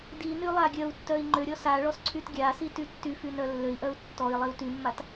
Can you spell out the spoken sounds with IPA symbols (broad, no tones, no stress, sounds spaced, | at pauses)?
d i n y lˠ a ɡʲ œ u̯ tː œ i̯ ŋ͡ǃ ø ɾʲ ɔ s a ɭ ɔ s ǀʰ y t ɡʲ a s i t y tː y f y n œ lː ø i̯ ʔ œ u̯ tː ɔ i̯ lˠ i u̯ t y mː a t